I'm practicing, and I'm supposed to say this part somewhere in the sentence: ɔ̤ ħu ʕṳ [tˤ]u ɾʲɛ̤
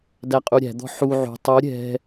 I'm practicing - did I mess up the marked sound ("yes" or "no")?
no